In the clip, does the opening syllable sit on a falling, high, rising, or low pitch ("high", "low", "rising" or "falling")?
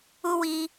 high